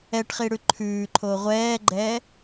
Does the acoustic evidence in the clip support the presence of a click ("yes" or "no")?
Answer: yes